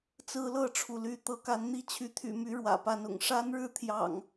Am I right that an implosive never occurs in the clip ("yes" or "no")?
yes